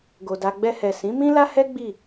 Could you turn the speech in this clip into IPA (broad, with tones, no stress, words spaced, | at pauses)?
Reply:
ɡo˨da˧ ɡ͡bɛ˧hɛ˨ sĩ˨˦mĩ˦la˦hɛ˦ ɡ͡bi˦˨